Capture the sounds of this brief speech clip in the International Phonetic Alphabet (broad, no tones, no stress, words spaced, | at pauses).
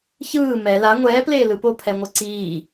çɯː mɛ la ŋʷɛːpleː lɯpo pʰɛŋʷɤǀiː